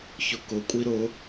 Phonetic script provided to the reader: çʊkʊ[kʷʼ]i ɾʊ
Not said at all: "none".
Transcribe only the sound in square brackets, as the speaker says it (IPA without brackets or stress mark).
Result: kʷʼ